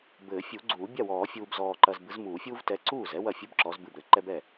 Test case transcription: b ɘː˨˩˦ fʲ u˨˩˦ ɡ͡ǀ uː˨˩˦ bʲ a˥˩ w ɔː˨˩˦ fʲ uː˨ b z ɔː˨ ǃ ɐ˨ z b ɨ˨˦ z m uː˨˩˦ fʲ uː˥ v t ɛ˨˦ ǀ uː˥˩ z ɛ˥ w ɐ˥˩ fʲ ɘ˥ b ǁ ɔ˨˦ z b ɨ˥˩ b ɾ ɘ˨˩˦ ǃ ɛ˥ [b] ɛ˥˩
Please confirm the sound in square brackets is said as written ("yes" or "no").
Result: yes